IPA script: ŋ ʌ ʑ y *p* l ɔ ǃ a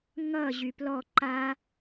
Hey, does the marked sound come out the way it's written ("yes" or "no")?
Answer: yes